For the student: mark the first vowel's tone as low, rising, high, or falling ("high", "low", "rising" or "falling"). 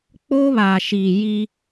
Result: high